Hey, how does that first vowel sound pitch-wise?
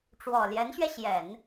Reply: low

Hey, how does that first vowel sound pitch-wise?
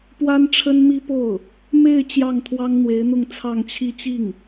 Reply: high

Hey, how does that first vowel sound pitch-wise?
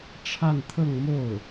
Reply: falling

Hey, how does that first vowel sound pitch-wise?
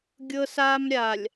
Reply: high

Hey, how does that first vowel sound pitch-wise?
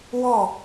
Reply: falling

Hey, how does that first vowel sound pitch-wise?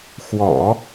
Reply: low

